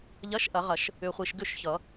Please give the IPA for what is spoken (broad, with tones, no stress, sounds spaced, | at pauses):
ʎ ɐ˧˥˧ ʃ ʔ ɐ˨˩˦ ʁ ɐ˨˩˦ ʃ | ʏ˨ χʷ i˨ ʃ ɡ ʏ˥˩ ʃ ç ʌ˨˩˦